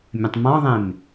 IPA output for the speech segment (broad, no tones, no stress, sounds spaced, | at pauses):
mʲ ə̃ tˤ m ɔ̃ ðˤ ẽ m